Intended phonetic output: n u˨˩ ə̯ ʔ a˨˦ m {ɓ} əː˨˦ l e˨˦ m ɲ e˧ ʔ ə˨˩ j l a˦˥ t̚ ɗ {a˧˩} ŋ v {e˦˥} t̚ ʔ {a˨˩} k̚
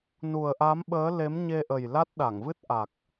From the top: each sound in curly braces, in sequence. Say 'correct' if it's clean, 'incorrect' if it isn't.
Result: correct, correct, incorrect, correct

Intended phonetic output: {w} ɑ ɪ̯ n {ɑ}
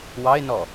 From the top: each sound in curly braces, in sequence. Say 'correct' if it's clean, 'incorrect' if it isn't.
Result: correct, incorrect

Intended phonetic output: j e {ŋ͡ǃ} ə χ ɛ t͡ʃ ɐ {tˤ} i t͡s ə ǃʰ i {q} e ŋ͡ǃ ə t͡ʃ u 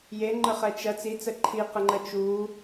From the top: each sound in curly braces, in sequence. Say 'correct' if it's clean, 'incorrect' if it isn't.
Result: correct, incorrect, correct

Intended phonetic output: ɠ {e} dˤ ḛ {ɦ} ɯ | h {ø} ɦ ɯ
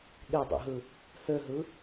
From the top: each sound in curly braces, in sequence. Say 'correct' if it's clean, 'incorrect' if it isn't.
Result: correct, correct, correct

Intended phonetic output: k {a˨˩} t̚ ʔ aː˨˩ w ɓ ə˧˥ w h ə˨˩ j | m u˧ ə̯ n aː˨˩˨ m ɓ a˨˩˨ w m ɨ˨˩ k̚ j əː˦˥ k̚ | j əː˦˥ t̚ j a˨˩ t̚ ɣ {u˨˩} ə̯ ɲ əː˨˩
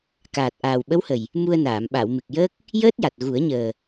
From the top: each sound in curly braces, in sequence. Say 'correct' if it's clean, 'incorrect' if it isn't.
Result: incorrect, incorrect

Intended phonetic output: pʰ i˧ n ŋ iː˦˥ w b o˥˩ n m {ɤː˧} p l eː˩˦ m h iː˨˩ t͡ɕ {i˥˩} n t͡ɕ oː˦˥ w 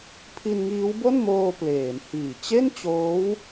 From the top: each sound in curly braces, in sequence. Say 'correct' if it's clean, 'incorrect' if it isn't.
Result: incorrect, incorrect

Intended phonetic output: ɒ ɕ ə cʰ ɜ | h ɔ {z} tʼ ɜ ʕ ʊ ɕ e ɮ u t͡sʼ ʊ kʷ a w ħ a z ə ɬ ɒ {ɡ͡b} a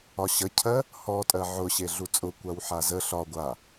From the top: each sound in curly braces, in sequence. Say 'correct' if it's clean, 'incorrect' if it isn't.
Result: incorrect, incorrect

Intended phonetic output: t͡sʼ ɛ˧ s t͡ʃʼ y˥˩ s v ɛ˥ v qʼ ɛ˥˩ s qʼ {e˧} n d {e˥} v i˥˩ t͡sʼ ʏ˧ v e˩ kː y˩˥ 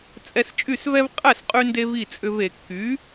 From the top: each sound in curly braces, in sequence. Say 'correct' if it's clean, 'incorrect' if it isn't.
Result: incorrect, incorrect

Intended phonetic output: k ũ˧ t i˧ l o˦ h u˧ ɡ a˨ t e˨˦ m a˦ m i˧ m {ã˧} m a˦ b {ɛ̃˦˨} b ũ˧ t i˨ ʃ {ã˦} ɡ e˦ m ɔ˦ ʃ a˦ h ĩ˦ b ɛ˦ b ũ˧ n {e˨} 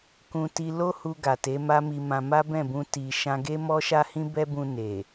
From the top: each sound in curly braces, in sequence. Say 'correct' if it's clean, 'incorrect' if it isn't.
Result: correct, correct, incorrect, correct

